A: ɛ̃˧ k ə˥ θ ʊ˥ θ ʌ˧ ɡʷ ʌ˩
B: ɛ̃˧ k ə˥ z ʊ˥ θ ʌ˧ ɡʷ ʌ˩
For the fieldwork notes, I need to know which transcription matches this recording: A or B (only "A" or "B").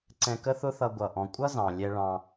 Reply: A